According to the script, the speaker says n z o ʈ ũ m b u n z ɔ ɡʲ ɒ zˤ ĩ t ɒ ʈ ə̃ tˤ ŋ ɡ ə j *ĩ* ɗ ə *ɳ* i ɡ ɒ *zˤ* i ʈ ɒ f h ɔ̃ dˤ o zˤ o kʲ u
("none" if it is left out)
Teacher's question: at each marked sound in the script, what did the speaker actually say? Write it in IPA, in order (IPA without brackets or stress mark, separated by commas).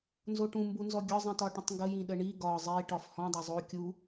ĩ, ɳ, zˤ